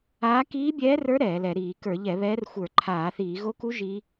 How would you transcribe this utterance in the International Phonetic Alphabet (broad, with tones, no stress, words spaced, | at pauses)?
aː˧˥ kiː˧˥bʲɛː˧˥rə˞˧˥ ɾɛː˧˩˧lɛ˧˩˧ ɾiː˧˩˧kə˞˧˩˧ʎɛ˧˩˧βɛː˧˥r xʷə˞˧˩˧ ǃʰaː˧˩˧θiː˧˩˧ ɣo˧˥ku˧˥ ʒi˧˥